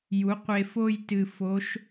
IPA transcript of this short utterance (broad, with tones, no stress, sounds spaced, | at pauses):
j u˩˥ qʷ e˧ f o˥˧ j t ɨ˧ f o˧˥ ʃ